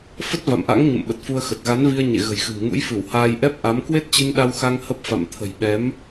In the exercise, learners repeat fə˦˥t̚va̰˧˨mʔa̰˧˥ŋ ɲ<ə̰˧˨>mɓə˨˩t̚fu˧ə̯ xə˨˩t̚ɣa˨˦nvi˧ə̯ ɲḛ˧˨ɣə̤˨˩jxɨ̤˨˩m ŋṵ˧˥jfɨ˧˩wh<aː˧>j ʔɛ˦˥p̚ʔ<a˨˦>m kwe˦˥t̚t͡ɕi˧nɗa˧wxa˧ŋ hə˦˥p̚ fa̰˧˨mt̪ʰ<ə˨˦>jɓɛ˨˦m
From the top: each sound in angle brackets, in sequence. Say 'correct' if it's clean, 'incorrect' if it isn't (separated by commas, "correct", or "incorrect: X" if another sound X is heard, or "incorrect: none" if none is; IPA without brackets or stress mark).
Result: correct, correct, correct, incorrect: ə̤˨˩